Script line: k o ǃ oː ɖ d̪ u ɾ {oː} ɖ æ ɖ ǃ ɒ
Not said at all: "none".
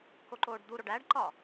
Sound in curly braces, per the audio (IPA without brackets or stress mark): o